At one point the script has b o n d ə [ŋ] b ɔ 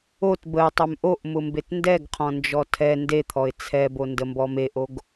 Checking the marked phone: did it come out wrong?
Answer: yes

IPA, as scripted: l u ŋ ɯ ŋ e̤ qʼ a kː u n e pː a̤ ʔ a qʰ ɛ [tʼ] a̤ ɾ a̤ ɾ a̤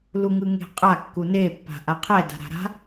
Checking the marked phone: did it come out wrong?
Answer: yes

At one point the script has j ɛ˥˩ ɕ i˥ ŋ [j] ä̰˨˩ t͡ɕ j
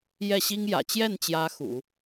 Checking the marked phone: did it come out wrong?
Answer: no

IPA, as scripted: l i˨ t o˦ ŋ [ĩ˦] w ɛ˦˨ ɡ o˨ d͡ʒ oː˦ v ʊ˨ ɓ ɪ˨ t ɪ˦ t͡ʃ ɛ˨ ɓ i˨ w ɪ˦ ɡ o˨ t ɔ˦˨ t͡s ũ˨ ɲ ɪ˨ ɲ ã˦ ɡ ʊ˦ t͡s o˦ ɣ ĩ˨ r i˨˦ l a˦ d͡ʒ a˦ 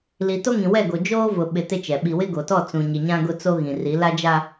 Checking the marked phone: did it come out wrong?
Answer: yes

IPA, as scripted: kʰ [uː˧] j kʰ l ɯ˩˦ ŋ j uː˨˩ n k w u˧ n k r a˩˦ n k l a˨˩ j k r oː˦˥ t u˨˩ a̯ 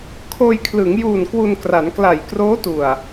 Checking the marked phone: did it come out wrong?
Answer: yes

